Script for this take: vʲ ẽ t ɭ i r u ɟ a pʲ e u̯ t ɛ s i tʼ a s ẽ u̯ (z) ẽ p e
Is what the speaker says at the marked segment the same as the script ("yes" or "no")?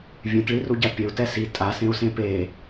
no